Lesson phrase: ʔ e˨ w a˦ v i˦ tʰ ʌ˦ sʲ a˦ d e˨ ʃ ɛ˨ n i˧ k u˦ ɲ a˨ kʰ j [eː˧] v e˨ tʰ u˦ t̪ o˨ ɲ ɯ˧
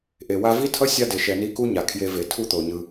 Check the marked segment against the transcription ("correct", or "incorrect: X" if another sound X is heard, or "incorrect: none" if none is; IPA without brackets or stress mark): incorrect: e˧